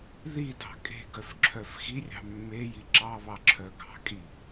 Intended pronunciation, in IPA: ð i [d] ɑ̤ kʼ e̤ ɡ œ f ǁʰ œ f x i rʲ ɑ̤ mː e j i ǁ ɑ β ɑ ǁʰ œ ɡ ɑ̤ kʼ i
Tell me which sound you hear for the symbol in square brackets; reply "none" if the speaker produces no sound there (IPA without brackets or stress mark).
d